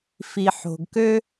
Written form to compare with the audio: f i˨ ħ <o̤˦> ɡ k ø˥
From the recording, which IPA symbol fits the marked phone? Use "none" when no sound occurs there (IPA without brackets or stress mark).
o̤˨